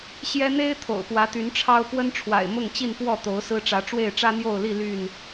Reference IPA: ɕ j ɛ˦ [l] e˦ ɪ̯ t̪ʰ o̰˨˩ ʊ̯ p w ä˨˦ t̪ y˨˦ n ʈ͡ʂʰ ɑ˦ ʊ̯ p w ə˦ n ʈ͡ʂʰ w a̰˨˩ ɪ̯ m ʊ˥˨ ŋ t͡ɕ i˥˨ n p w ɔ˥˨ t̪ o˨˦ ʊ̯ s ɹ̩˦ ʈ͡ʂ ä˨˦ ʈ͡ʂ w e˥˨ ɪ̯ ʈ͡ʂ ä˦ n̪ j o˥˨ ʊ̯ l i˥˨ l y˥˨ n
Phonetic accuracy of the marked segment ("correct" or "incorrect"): incorrect